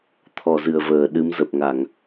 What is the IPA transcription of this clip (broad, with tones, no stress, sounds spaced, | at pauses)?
t̪ʰ ɔ˧˩ z ɨ˧˩ ə̯ v əː˧˩ ɗ ɨ˨˦ m z ə˨˩ p̚ ŋ a˧˩˨ ŋ